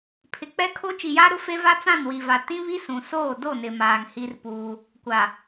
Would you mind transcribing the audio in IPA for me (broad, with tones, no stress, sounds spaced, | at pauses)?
pʰ ɪ˨ k͡p ɛ˦ kʰ o˦ t͡ʃ i˨ j aː˦ ɾ ʊ˦ f e˦ v a˦ t͡s ã˦˨ n w i˨ v a˨ t ĩ˦ β i˦ s ũ˨ s oː˦˨ d o˦˨ n ɪ˨ m aː˨ ŋ h i˦ r p uː˦ | kʷ a˨